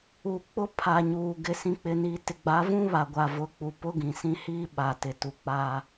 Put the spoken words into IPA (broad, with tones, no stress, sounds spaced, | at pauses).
u˨ k͡p ʊ˦ pʰ a˨ ɲ uː˨ ɡ ɪ˨ s ĩ˨ k͡p ɪ˨ n iː˨ t ɪ˨ ɡ͡b a˨˦ v ũ˦ β a˨ ɡʷ aː˨ v ʊ˨˦ k͡p u˨ p ʊ˦ ɡ ĩ˨ s ĩ˦ h iː˦ ɓ aː˨ t ɪ˨ t u˨ k͡p a˦